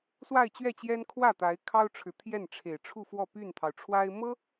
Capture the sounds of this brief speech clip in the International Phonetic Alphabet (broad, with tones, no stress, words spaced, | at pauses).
swa˥˧ɪ̯t͡ɕɥɛ˥˩t͡ɕjɛ˥n kʰwä˥˩t̪a˧˥ɪ̯kʰɑ˥ʊ̯ʈ͡ʂʰɻ̩˨ t̪ʰjɛ˥˩nʈ͡ʂʰe˨˩ɪ̯ʈ͡ʂʰu˥˧fwɔ˥˧ py˥˩nt̪ʰɑ˩ʊ̯ʈ͡ʂʰwa˥ɪ̯ mɤ˥